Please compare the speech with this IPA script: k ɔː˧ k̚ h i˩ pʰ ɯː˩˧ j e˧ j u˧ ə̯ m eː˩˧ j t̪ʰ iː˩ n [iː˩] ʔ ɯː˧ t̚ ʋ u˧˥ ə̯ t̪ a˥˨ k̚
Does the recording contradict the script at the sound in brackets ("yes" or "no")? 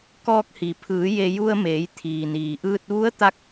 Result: no